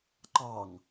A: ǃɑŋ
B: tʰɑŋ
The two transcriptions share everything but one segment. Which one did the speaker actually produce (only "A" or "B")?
A